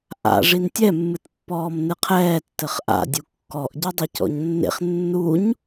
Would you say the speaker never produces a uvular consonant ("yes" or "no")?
no